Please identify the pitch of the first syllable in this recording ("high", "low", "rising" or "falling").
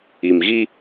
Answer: low